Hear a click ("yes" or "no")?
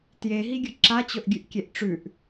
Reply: yes